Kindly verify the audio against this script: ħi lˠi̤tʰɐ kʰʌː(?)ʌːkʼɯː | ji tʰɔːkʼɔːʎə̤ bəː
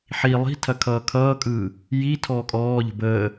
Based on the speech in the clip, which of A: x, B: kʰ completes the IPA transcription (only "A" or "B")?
B